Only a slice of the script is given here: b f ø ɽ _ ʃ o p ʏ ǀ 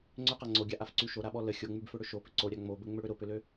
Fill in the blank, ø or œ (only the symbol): ø